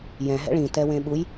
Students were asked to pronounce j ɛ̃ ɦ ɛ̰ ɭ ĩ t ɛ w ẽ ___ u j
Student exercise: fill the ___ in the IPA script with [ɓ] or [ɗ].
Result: ɓ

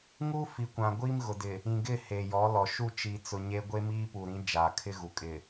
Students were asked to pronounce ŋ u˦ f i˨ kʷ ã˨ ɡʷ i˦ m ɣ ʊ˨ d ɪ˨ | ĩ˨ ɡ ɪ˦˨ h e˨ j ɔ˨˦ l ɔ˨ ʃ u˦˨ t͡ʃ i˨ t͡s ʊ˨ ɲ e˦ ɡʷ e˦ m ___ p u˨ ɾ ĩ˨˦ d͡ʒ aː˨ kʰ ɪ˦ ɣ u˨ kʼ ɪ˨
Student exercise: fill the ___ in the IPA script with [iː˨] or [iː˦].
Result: iː˦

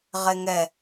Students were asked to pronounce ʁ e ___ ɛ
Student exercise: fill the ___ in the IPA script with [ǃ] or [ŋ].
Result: ŋ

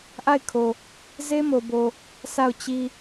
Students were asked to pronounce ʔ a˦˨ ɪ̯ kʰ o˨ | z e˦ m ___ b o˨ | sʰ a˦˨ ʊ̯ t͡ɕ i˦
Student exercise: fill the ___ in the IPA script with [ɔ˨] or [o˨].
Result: o˨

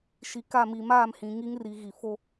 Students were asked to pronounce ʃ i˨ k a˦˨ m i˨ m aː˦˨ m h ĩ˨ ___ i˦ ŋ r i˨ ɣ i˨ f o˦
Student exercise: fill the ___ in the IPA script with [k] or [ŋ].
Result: ŋ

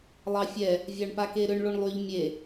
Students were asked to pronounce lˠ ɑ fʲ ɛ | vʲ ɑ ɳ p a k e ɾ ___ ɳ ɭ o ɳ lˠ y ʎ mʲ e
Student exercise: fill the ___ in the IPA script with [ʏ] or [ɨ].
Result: ʏ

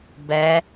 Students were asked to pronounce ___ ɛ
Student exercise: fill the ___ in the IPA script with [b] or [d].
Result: b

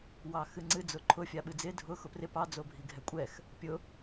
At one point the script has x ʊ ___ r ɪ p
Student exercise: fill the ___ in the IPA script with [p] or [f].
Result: p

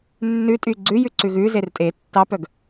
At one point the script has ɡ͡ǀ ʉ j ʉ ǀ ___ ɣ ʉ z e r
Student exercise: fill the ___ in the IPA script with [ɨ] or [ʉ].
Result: ʉ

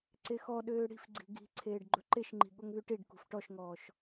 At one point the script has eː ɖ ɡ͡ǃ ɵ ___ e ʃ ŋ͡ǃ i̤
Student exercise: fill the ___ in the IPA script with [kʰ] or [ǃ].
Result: ǃ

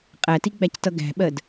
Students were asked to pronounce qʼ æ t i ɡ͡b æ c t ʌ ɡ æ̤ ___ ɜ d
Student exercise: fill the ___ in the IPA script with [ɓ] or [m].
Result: ɓ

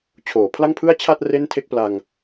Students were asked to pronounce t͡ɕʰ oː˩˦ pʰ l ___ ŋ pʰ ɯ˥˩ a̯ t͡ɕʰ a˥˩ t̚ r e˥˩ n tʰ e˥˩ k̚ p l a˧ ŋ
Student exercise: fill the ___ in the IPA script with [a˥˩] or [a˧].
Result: a˥˩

